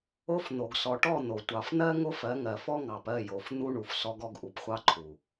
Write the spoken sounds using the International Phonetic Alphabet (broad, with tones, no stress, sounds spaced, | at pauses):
o˦ f n̪ o˨ ɡ s ɔ˨ ʈ ɔ˦˨ n̪ o˨ tʷ ɑ˨ f n̪ ɜ˦ ŋ o˦ f ɜ˨˦ ŋ ɜ˨ f ɔ˦ ŋ ɑ˨ p ɜ˦˨ j o˨ f n̪ u˦ ɳ u˨ f s ɔ˦ ɡ ɔ˦ ɡ ʔ u˨ p χʷ ɑ˦ ǃʰ u˨